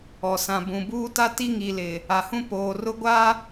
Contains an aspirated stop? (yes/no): no